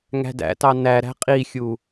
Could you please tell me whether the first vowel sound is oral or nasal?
oral